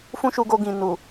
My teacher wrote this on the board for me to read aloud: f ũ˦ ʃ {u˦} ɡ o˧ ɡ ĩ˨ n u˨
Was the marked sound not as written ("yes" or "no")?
yes